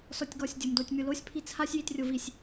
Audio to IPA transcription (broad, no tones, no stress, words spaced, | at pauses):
sɔtʲɡɔsʲdʲom dotʲmʲolosʲ pʰit͡sʰasʲ jitrʲovisʲ